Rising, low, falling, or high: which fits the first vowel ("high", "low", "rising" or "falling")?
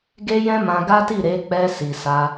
high